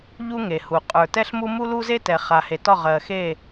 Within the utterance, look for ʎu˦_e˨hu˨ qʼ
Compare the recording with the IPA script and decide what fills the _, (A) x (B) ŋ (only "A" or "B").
B